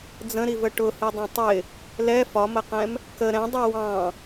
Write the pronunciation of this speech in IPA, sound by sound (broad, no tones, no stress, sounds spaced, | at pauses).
d͡z ə̃ ɾ i v ə ʈ ʊ h i dˤ ɛ̃ tˤ ɪ | l ɛ f ɒ m ə q ɛ̃ m | k ə ɾ ɛ̃ dˤ i w ɑ̃